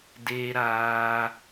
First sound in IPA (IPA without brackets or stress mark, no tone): d